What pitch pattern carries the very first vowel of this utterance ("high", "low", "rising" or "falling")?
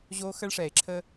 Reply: high